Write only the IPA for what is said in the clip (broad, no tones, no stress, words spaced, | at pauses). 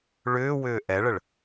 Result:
ɭʏːwʏː ʔɛɭəɭ